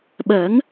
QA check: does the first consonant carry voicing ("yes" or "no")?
yes